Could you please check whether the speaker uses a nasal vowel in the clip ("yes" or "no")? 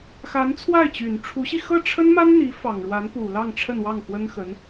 no